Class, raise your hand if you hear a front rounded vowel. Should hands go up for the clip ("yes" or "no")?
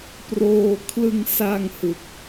no